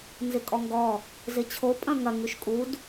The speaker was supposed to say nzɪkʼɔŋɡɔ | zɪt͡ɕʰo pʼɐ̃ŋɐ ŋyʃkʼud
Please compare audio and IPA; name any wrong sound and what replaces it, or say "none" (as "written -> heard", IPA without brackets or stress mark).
none